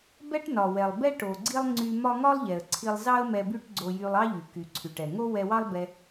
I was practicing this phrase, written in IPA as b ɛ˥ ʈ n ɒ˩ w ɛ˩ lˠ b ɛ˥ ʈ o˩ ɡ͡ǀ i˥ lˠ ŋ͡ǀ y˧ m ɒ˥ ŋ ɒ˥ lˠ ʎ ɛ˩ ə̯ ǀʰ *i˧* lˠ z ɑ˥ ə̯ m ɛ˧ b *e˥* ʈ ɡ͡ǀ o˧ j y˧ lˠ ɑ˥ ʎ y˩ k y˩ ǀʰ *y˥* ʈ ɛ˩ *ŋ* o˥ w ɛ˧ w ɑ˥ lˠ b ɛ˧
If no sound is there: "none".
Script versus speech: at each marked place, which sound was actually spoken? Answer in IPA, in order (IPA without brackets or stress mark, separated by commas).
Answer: i˧, y˥, y˩, ŋ